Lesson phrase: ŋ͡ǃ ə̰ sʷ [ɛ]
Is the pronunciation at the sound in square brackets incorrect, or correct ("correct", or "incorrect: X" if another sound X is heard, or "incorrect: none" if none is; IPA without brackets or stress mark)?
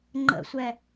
correct